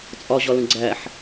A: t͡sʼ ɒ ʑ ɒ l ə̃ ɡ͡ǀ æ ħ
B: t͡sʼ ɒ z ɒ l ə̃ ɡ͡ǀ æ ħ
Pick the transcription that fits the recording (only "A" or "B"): A